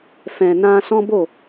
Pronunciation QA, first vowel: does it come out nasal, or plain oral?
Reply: nasal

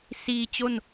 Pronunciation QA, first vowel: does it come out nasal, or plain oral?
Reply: oral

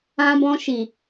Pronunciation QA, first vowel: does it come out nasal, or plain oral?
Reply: nasal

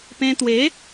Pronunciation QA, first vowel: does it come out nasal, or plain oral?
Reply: nasal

